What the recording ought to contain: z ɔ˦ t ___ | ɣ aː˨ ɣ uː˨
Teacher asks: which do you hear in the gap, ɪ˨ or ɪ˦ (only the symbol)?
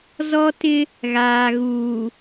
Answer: ɪ˦